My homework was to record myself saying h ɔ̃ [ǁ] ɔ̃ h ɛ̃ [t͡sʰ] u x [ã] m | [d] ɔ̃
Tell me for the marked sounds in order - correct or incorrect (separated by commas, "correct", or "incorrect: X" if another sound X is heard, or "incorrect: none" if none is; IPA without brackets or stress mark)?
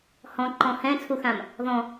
incorrect: ǃ, correct, correct, incorrect: ð